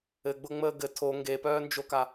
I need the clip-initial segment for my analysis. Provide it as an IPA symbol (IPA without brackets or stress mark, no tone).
ɘ